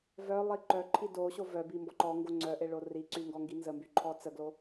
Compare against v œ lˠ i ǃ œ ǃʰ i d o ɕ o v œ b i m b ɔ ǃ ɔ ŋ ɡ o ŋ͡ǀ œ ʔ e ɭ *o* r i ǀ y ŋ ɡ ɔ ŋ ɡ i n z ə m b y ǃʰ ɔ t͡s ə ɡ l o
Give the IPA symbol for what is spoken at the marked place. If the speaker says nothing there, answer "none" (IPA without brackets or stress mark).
o